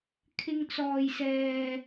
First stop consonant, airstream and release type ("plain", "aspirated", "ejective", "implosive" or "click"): aspirated